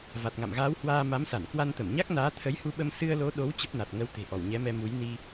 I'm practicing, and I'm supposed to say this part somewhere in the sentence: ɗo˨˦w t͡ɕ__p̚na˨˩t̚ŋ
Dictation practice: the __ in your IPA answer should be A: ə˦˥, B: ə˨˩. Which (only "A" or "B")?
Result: A